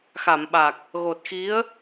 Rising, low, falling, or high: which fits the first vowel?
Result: low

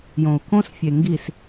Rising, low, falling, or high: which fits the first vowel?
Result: low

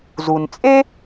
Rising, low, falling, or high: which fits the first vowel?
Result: low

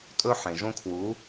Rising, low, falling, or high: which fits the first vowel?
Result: high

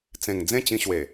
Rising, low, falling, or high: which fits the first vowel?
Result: low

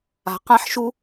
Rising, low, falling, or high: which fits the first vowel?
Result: low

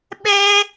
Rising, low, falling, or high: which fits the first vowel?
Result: high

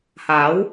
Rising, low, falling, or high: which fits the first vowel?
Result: rising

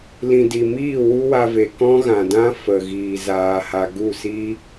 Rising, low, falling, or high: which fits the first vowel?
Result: low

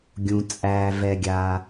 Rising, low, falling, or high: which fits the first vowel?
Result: low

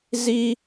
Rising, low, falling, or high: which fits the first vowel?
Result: high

